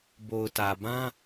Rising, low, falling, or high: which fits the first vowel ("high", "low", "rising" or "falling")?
low